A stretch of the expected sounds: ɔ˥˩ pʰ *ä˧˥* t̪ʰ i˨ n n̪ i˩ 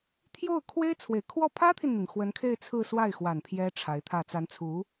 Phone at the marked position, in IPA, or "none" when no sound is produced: ä˥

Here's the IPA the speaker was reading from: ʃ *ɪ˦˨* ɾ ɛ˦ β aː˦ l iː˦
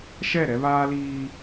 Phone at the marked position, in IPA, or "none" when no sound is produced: ɛ˦˨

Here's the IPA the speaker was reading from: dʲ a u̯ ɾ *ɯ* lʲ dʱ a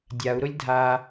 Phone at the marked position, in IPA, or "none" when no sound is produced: ʊ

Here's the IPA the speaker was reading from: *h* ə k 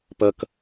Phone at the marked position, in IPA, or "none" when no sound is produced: p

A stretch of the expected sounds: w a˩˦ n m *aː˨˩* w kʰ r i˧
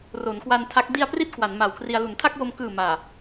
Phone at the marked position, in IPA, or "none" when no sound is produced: a˨˩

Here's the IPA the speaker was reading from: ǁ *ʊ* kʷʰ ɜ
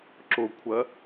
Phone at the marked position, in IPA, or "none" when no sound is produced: ʊ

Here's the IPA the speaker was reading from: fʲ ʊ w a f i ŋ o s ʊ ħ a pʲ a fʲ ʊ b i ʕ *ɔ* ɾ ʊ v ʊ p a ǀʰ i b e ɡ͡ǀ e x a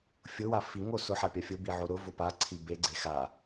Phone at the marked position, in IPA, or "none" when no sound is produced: o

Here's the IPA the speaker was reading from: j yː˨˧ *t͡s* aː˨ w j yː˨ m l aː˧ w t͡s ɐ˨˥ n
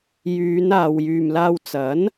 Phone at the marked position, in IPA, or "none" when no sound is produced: n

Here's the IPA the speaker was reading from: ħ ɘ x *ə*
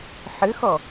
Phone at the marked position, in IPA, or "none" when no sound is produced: ɔ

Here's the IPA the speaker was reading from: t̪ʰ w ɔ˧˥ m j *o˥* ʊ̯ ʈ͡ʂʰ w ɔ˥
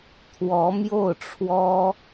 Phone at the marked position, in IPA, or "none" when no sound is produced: o˥˩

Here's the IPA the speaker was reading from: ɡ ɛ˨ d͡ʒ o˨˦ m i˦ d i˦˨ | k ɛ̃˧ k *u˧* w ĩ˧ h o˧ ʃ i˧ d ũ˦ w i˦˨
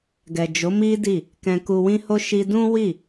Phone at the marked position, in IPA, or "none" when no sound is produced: u˧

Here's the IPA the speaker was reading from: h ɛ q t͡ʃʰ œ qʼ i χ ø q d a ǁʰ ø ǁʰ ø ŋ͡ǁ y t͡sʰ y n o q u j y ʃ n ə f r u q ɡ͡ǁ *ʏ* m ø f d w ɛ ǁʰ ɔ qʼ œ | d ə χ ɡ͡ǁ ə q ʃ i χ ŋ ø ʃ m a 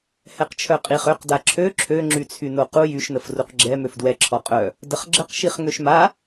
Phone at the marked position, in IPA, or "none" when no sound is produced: ɛ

